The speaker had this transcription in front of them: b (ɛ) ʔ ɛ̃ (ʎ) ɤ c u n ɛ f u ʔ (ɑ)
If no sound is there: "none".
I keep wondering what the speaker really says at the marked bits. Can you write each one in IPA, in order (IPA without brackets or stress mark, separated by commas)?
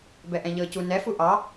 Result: ɛ, ʎ, ɑ